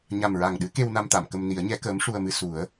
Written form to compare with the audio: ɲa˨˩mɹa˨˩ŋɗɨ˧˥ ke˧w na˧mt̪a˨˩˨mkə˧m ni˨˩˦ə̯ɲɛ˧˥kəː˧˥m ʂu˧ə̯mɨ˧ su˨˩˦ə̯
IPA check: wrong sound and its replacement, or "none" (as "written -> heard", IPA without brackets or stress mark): none